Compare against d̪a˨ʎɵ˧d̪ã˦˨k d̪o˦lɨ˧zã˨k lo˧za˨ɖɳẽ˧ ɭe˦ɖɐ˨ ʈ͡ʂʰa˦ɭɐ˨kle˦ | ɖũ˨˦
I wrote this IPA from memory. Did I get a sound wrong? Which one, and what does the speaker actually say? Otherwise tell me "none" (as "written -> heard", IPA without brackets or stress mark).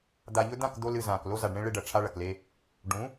none